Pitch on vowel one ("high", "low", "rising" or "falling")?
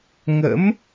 rising